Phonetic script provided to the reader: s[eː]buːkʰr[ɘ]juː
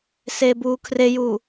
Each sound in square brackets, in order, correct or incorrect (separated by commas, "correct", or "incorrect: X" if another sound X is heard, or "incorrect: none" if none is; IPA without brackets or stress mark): correct, incorrect: e